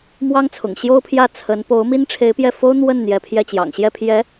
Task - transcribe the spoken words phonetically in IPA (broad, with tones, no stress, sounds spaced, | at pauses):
m w ɑ˥ ŋ t͡sʰ ʊ̰˨˩ ŋ ɕ j o˥ ʊ̯ pʰ j ä˥˩ t͡sʰ ə˧˥ n p o˧˥ ʊ̯ m i˥ n ʈ͡ʂʰ e˧˥ ɪ̯ p j ɛ˥˩ f o˥ ʊ̯ n̪ w ə˥˩ n n̪ j ɛ˧˥ pʰ j ɛ˥˩ t͡ɕ j ɑ̰˨˩ ŋ ɕ j ɛ˥˩ pʰ j ɛ˧˥